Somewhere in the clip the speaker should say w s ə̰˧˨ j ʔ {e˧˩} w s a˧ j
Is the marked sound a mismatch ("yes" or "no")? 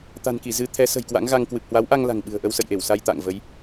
no